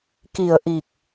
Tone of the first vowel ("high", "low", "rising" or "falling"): low